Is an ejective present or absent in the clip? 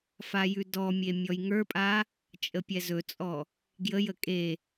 present